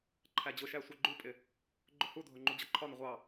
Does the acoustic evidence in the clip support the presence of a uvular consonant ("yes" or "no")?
yes